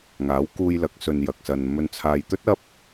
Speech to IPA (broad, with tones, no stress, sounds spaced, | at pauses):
ŋ aː˨˥ w k uː˧ j l ɐ˨˥ k̚ s ɵ˨ n j ɐ˨ k̚ s ɐ˨ n m ɵ˧ n t͡sʰ aː˨ j t̪ ɵ˥ t̚ ɐ˥ p̚